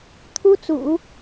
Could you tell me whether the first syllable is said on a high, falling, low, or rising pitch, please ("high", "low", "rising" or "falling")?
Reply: high